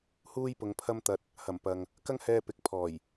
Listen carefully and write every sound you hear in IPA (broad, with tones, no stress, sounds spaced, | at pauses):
h uː˥ j p ʊ˨˧ ŋ pʰ ɐ˥ m t̪ ɐ˧ t̚ | h ɐ˨˩ m p ɐ˨ ŋ | k ɐ˥ ŋ h ɛː˧ p ɪ˨ k̚ pʰ ɔː˨˩ j